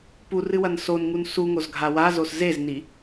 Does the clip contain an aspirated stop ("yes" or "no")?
no